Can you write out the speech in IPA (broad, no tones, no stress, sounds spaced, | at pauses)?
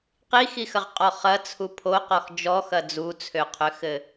q i x i x ɐ ʁ qʼ ɔ χ ɐ t͡sʰ u pʰ o q ɔ x d͡ʒ ɔ x ɐ d͡z u t͡sʰ ø qʰ ø x ɘ